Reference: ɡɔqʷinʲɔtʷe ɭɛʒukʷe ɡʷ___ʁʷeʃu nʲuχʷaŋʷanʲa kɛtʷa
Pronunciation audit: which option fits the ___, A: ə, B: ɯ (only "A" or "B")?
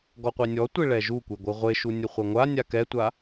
B